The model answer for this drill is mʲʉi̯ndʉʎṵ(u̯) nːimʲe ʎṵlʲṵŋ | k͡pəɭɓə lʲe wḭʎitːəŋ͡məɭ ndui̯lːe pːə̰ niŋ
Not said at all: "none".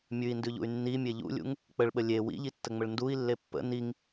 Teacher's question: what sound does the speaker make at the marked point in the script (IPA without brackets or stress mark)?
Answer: y̯